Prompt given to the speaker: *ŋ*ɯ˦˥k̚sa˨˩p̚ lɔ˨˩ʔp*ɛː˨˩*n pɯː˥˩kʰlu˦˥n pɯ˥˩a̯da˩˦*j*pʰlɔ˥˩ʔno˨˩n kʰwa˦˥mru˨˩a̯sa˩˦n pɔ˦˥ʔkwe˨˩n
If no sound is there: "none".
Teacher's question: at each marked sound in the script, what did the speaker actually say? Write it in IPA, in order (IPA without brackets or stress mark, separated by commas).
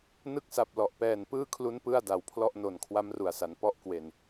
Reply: n, ɛː˨˩, w